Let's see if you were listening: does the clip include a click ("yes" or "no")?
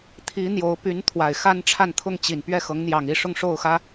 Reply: no